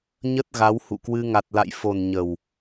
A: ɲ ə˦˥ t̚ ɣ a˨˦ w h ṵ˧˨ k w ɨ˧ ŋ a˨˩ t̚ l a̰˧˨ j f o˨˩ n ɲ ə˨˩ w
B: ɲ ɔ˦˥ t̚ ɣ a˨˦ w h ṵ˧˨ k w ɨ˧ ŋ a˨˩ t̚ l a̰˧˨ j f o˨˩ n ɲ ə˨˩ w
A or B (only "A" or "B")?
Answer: A